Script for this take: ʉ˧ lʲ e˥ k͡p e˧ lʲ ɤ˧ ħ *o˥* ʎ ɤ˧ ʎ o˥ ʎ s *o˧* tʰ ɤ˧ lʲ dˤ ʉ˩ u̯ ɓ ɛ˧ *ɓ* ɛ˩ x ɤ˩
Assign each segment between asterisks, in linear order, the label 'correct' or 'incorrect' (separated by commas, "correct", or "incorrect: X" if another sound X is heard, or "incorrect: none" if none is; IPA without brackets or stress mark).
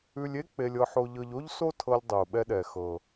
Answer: incorrect: o˧, incorrect: o˥, incorrect: ɗ